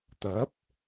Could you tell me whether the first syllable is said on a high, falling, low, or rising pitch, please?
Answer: rising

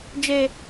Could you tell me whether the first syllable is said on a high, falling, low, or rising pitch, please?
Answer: high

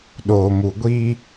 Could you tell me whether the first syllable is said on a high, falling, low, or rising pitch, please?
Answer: low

